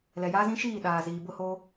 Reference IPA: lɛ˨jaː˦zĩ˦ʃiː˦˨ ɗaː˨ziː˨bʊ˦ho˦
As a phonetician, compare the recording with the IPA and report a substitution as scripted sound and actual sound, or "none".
none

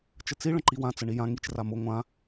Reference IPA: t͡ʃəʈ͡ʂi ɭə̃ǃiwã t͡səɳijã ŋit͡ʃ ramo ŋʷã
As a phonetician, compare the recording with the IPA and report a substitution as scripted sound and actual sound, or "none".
ʈ͡ʂ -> t͡s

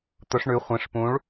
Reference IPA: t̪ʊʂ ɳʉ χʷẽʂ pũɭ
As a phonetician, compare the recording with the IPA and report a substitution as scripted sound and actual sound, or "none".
none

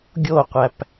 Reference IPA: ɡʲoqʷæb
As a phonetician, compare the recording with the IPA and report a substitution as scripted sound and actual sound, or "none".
b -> p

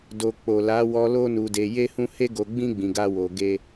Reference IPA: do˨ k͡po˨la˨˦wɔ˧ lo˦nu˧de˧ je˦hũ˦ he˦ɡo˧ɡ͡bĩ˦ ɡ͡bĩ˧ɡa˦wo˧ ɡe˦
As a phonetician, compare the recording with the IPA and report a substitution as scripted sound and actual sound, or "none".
none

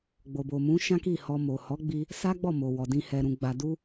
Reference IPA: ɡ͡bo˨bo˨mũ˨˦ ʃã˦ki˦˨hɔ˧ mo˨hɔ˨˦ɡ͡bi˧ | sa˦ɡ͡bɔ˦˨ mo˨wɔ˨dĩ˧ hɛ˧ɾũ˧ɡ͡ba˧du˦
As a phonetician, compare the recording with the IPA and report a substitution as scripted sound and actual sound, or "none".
none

